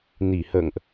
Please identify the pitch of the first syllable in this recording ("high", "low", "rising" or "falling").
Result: low